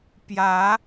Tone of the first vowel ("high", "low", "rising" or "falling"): rising